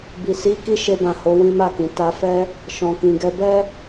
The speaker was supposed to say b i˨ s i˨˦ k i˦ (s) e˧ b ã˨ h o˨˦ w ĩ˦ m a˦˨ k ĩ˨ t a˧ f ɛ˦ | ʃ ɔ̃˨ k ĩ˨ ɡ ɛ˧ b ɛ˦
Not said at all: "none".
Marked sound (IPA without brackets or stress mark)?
ʃ